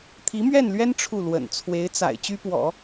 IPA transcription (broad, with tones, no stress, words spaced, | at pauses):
t̪ʰi˧˥mɥɛ˥˩nlɥɛ˥n ʈ͡ʂʰu˥˩ lwə̰˨˩n t͡sʰwe˧˥ɪ̯t͡sa̰˨˩ɪ̯ t͡ɕy˥pwɔ̰˨˩˦